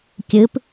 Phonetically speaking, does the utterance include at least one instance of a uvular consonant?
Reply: no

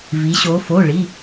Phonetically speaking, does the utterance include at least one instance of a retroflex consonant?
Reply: yes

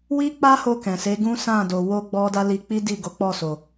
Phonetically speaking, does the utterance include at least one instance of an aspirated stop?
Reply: no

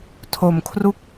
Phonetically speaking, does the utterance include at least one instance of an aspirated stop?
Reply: yes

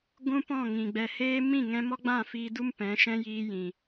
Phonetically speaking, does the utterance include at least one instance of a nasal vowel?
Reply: yes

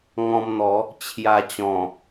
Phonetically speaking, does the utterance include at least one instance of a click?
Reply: no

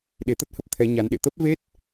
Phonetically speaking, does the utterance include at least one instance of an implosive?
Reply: yes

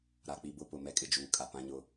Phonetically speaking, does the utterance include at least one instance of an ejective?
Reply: yes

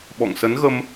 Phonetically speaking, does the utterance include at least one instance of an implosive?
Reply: yes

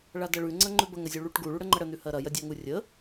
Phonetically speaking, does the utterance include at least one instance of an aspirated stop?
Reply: no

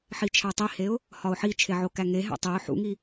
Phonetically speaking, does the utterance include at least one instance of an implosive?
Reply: no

